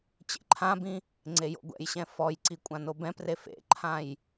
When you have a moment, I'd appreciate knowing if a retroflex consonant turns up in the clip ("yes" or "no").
no